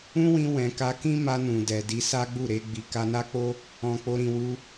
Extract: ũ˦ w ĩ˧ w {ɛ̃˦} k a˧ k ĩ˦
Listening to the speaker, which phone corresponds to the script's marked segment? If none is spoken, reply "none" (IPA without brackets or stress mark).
ɛ̃˨